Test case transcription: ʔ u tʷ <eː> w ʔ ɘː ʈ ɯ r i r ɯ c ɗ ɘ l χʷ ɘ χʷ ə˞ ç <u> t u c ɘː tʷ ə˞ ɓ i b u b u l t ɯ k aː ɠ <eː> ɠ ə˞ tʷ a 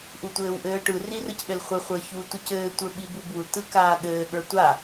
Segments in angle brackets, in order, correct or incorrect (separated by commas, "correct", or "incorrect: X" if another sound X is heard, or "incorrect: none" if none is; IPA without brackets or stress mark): incorrect: ɘː, correct, incorrect: ɘː